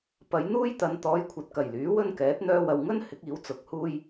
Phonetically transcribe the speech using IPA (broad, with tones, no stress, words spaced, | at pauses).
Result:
pɐ˨˧jn̪uː˥jt̪ɐ˨n t̪ɔː˧jkʷʰɐ˨t̚kɐ˨˩j lyː˨˥wɵ˥nkɛː˨˥t̚ n̪œː˧wɐ˨wŋɵ˥n hɪ˨˥k̚iː˨˥wt͡sʊ˨˥k̚huː˥j